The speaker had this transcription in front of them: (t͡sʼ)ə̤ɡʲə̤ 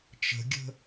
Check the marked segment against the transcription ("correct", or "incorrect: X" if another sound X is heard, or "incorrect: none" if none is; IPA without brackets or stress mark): incorrect: t͡ʃ